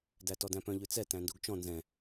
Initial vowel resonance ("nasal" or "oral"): oral